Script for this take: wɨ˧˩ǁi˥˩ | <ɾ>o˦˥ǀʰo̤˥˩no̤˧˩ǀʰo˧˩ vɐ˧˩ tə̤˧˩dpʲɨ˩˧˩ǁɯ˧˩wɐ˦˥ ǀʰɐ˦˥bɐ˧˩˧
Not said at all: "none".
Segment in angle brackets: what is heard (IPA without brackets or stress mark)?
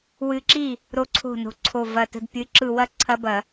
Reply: ɾ